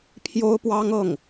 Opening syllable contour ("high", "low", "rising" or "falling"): high